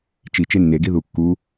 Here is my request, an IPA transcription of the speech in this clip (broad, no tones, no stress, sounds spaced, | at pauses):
t͡ʃ i t͡ʃ e nː e ɡ i ð u kː u